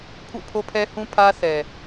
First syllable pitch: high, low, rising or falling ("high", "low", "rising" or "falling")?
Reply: falling